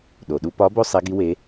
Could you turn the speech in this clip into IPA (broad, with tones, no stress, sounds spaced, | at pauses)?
ɗ o˩ ɗ u˧ p ɒ˧˥ b o˥ sˤ e˧˥ ɡ i˧˥ w e˧˥